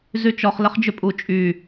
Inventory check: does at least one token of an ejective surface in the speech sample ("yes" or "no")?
yes